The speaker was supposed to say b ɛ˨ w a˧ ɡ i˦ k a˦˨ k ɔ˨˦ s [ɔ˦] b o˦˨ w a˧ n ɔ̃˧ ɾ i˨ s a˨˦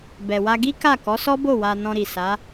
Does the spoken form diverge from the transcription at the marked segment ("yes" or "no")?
no